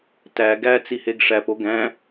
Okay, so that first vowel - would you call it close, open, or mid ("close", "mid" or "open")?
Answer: open